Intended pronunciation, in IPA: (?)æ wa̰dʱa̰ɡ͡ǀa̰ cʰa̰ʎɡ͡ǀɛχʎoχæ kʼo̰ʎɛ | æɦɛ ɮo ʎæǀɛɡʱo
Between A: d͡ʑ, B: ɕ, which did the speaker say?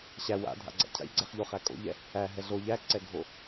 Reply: B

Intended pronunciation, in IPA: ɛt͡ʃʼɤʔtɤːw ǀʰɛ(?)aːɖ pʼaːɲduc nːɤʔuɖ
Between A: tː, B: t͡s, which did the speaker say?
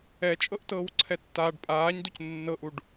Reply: A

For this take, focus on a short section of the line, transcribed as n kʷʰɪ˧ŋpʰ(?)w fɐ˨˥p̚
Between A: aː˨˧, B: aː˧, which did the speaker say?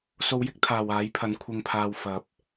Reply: B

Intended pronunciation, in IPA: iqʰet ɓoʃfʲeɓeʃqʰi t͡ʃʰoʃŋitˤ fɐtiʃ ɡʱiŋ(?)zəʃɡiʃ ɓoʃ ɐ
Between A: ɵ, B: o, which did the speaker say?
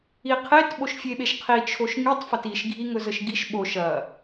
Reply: A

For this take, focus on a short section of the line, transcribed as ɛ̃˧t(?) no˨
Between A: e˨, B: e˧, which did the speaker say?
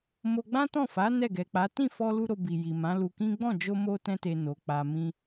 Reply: A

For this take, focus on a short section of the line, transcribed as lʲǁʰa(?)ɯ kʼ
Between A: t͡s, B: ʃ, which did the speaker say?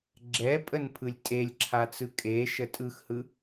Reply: A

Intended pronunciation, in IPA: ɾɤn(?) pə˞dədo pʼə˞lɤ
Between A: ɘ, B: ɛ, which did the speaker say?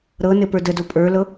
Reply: A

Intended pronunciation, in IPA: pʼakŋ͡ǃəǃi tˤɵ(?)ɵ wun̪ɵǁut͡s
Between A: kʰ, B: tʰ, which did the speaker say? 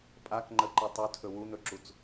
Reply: B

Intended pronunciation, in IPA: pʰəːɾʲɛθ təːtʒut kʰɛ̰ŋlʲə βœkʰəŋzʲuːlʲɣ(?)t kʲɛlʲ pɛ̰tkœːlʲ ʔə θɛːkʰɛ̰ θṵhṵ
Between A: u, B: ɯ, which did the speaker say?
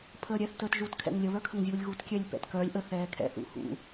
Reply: A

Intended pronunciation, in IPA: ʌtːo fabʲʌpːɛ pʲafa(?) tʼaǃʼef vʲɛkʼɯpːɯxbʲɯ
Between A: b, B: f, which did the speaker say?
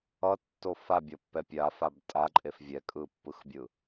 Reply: A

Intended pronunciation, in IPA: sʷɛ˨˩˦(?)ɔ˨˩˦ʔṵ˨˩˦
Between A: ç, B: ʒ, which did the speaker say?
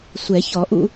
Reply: A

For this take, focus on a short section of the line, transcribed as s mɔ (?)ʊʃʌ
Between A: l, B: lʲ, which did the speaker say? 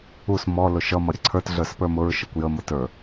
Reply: A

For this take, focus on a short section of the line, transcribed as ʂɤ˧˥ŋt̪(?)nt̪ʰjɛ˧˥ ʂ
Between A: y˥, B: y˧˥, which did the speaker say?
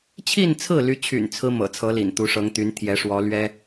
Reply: B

